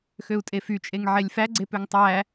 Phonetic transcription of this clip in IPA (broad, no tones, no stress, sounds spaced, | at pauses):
x ø u̯ tʼ e f y t͡ʃʼ e ŋ ʕ e lʲ f æ ɡ͡ǀ e p ø ŋ tˤ æ